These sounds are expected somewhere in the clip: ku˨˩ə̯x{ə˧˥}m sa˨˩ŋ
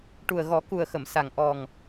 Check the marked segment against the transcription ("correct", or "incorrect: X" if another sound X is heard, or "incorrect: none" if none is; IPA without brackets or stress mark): incorrect: ə˨˩˨